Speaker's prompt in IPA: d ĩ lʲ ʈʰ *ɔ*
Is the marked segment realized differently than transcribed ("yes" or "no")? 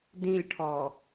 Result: no